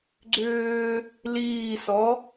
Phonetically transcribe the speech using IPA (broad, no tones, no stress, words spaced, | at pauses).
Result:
ɡ͡ǀʏː | liːsɔ